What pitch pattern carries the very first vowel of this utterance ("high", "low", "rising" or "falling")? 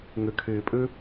low